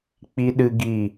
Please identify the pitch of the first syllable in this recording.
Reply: high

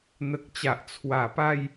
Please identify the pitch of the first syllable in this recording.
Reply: low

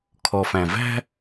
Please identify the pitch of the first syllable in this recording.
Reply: low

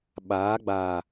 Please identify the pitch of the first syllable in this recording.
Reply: rising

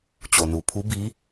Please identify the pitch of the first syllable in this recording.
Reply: low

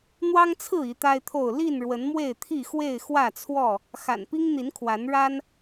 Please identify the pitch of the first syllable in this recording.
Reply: high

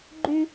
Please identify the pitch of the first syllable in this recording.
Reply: high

